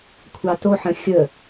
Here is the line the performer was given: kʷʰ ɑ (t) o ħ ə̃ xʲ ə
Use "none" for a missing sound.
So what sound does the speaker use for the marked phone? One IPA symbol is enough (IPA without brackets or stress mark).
t